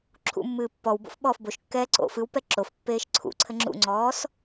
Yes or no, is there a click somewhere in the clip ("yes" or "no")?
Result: yes